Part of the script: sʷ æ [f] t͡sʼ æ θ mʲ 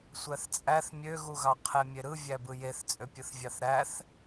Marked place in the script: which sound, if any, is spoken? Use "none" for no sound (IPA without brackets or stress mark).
θ